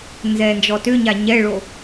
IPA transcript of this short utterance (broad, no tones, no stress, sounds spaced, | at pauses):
n z ɛː n d͡ʒ ɔ t ʏ ɲ a ɲ ɛ ɭ o